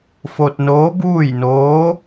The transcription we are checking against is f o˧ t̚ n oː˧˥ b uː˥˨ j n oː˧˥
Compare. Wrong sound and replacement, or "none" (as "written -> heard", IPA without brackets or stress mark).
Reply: none